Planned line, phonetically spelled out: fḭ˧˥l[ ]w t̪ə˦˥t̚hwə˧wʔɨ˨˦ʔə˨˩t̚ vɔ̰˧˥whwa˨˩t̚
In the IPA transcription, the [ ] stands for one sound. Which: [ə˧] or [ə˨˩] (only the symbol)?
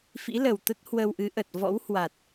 ə˨˩